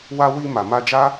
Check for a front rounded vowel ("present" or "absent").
absent